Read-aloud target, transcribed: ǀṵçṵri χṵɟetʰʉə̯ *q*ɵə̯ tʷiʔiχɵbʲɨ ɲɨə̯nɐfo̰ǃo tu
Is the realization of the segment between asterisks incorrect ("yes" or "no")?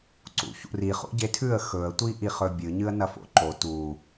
yes